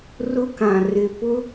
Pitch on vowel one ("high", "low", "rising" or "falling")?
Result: high